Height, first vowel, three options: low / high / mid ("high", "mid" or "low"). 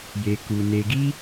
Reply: mid